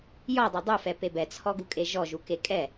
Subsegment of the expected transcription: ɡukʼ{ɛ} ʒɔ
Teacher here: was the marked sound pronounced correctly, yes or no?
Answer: no